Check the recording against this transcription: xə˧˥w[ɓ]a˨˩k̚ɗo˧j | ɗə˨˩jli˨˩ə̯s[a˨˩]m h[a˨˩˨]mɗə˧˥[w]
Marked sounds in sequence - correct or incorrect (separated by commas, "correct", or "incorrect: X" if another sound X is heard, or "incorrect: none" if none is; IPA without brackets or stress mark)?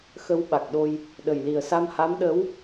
correct, incorrect: a˧, incorrect: a˧˥, correct